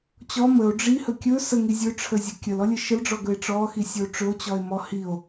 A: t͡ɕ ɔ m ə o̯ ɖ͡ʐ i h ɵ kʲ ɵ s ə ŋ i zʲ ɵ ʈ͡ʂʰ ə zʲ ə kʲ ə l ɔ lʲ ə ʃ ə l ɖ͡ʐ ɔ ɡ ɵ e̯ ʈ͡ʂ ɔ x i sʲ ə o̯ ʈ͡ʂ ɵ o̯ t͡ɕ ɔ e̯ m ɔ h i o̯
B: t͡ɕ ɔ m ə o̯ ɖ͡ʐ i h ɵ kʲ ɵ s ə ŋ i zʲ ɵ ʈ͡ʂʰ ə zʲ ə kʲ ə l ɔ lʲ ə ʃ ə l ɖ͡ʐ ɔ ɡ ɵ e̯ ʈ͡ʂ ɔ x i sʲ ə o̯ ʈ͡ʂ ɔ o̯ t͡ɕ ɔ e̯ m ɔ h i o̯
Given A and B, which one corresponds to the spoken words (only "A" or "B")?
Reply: A